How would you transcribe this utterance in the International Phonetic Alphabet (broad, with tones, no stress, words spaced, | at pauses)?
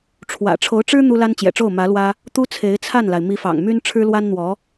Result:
ʈ͡ʂʰwä̰˨˩ ʈ͡ʂʰo˧˥ʊ̯ʈ͡ʂɻ̩˥ n̪u˥la˥n t͡ɕjɛ̰˨˩ʈ͡ʂo˥˩ʊ̯ mä˧˥lwä˥ | t̪u˥t͡sʰe˧˥ɪ̯t͡sʰa˥˩nla˩ɪ̯ mi˧˥fɑ̰˨˩ŋmy˥n ʈ͡ʂʰɻ̩˥lwa˥nn̪wɔ˧˥